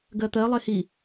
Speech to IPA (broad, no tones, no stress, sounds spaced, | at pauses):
ɡ ɜ t̪ ɜ lˠ e h i